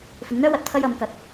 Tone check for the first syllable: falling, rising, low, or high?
rising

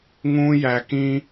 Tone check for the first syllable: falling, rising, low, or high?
high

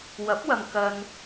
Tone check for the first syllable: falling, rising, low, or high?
rising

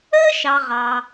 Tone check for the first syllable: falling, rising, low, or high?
high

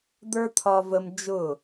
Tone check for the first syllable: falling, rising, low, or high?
high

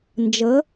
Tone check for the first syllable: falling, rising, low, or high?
rising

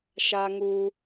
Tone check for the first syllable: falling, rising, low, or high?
high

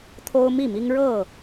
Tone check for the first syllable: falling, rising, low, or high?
high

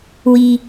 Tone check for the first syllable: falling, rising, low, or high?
high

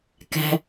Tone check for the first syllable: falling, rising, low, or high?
high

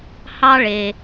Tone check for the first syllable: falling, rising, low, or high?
high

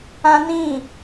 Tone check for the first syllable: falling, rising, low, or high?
high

